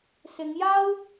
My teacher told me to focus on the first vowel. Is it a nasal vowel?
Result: no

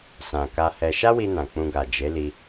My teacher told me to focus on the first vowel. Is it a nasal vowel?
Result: yes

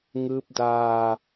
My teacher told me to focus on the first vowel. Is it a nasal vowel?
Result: no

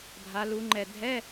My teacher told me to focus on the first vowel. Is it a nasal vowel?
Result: no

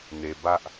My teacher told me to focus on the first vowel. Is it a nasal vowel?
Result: no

